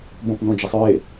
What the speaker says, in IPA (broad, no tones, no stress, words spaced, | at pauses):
bõpnõd͡ʒəsˤɹe